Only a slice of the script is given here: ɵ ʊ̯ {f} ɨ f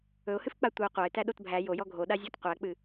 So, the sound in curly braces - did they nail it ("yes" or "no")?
no